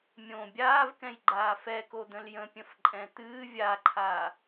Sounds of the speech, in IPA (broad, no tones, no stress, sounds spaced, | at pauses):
mʲ õ bʲ aː v k ɛ̃ j ɡ͡ǃ aː f ɛ k o d̪ ə̃ l j ə̃ pʲ ə̃ f ǃʼ ɛ̃ t̪ ɨː vʲ a ǃʰ a